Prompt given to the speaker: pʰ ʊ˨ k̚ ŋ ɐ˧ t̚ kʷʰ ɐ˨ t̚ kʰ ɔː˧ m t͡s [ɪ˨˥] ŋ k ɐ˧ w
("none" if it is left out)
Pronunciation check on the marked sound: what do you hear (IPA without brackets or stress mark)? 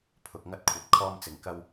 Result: ɪ˨˩